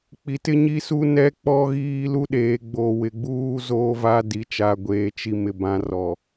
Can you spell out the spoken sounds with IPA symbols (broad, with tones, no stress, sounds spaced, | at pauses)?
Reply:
k͡p i˨ t ɪ˦ ɲ i˦ s u˦ n ɛ˦ k͡p ɔ˦ ɣ iː˦ l u˦ ɗ eː˨˦ ɡ͡b oː˨ w ɪ˨ ɡ͡b uː˦ z oː˦ v a˦ d i˦ t͡ʃ a˦ ɡʷ eː˦ t͡ʃ i˦ m ɪ˦ b ã˦ r ɔ˨